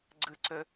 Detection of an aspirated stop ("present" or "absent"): absent